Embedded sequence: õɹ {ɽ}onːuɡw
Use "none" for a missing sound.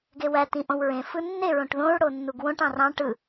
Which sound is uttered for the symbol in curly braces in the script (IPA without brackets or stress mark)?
ɽ